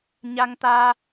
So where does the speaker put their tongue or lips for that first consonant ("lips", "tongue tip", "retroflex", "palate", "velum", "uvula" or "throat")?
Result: palate